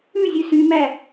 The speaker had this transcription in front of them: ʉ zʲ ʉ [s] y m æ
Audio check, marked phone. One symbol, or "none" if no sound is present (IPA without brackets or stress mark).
s